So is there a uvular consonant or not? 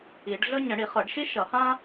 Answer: yes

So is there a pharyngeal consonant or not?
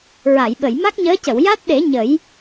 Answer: no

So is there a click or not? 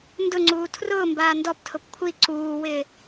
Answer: yes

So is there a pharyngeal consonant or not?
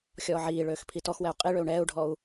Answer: yes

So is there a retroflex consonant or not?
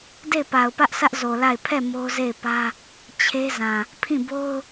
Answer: no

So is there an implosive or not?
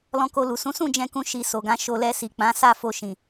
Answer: no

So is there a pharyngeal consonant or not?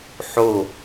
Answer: yes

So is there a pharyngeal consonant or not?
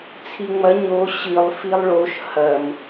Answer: no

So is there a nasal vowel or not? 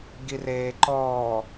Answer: no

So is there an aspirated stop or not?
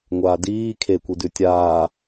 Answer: yes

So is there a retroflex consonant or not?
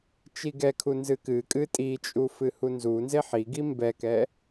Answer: no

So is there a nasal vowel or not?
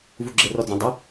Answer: yes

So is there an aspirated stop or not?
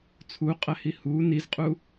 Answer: yes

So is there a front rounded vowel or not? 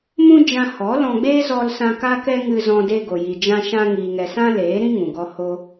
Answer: no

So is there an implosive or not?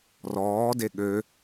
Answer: yes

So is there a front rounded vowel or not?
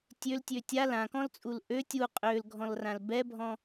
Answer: yes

